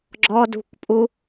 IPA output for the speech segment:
ɡ͡ǁ ɔ d ṳ kʷ pʼ u

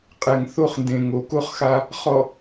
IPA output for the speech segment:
qʼ ɛ˨ ŋ θ o˦˨ χ n d ẽ˨ ŋ o˨ k o˦ χ x a˦ | χ ɔ˨

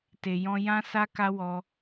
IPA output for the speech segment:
t e˨ j ɔ̃˧ j ã˦ s a˦ k a˦ w ɔ˧

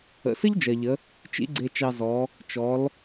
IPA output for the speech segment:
ə̰˩˧ s ə˥ ʎ d͡ʒ ɜ˩ ʎ ə˩˧ | t͡ʃ ḭ˥ ɡ͡ǀ e˧ t͡ʃ ɑ˧ z ɔ˩˧ | t͡ʃ ɔ˩˧ l

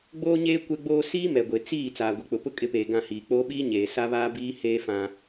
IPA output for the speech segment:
ɡ͡b oː˦ ɲ eː˦ kʷ ɛ˦ ɡ͡b oː˦ s iː˦ m ɛ˨ ɡʷ e˨ t͡s iː˦˨ t͡s aː˨ ɡʷ i˨ k͡p ʊ˨ p ʊ˦ kʼ ɪ˨˦ p eː˨ ɡ ã˦˨ h iː˨ k͡p oː˦ ɓ iː˦ ɲ eː˨ s a˦ β aː˦ b iː˦ h eː˦ f ã˦

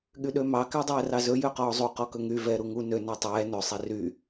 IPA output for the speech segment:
ɠ y ɗ ø m ɑ k æ dˤ ɛː r ɑ z ɵ j ø q ɔː zˤ u q ɔ k ɵ ŋ y v ɛː ɾ u ŋ u n ø n ɛ tˤ ɛː n ɵ sˤ e r y

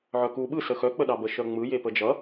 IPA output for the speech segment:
ʕ œ k u ɓ ɯ s ə x œ k͡p ə ɗ ɑ b ə ʃ œ ŋ͡m ɯ j e p ə d͡ʒ ʌ

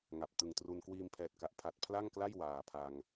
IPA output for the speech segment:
ŋ a˨˩ p̚ t ɯ˨˩ ŋ t r u˧ n k w iː˧ m pʰ ɛː˨˩ t̚ k a˨˩ ʔ pʰ a˨˩ t̚ pʰ l a˥˩ ŋ k l a˥˩ j w aː˨˩ pʰ a˧ ŋ

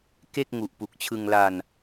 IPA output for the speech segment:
k e˥˩ k̚ ŋ u˨˩ ʔ p u˨˩ k̚ t͡ɕʰ ɯ˧ ŋ l a˧ n

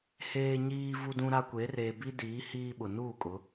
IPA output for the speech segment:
h eː˨ ɲ iː˨ v u˦ d ũ˦ ɾ a˦ kʷ e˨˦ r eː˨ b i˦ d iː˨˦ h iː˦ ɓ ʊ˨ n uː˦˨ kʼ ʊ˨˦

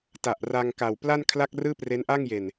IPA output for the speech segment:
t a˨˩ ʔ r a˧ ŋ k a˨˩ w p l a˥˩ n kʰ l a˥˩ k̚ r ɯː˥˩ p r e˦˥ n ʔ a˥˩ ŋ j e˨˩ n

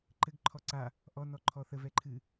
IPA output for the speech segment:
ǃ ɘ ɡ ǃʰ ɔ ǀ a | ʔ ɔ n ɔ ǃʰ ɔ θ ə v ɛ ǃʰ ɨ

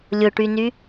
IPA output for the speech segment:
lʲ ʊ ʈ y n y

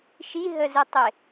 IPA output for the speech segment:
ʃ i ɦ ə z ɪ tˤ ɪ

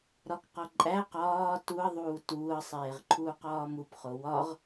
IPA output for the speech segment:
ɾ ɒ k q ɒ ǃʼ æ q ɒː t u ə̯ ðˤ uː t uː ə̯ sˤ eː ʁ ǃʰ uː q ɒː m u p χ o w ɒ ʁ

